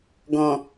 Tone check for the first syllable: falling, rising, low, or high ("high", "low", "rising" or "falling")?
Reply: low